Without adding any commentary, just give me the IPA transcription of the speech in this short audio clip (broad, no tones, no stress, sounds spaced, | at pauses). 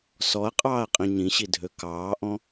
s ɔ ɐ̯ qʼ ɑː ɐ̯ qʼ ĩ ɲ ĩ ɕ i dʱ ø k ɑː ʔ ɔ̃